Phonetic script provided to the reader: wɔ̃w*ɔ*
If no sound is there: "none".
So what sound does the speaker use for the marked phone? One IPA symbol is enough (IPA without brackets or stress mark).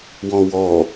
ɔ